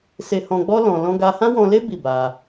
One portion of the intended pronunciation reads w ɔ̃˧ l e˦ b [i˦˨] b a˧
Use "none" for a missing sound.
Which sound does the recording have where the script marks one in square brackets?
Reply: i˦˨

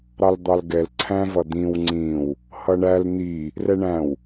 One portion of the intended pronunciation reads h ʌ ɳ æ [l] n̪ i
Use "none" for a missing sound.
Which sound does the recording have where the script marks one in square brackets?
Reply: l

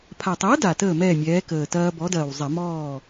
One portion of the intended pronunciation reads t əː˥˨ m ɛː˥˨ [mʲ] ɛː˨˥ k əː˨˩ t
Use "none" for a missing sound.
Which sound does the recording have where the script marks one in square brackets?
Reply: mʲ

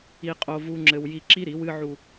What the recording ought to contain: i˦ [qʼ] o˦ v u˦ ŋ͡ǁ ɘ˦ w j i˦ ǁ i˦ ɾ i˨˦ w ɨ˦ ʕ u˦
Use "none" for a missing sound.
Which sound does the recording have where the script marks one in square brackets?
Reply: qʼ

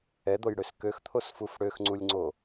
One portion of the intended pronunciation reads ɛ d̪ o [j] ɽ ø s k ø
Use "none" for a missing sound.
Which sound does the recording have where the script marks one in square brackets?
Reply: j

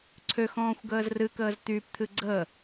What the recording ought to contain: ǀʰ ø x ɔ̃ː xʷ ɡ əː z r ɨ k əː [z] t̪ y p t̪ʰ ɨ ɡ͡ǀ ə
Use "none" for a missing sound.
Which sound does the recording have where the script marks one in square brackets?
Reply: z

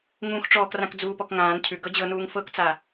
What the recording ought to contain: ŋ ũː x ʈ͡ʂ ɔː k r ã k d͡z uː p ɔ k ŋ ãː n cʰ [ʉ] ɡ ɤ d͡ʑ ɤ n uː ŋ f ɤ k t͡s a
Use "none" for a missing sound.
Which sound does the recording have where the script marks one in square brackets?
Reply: ʉ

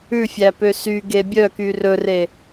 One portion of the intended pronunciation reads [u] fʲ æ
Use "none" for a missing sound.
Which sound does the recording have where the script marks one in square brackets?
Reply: ʉ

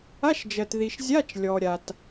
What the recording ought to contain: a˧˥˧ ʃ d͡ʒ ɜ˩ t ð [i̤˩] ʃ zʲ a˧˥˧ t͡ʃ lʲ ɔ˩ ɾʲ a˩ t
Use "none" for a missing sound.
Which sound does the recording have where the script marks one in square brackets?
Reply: i˩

